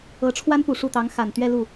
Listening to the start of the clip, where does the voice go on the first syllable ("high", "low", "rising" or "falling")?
rising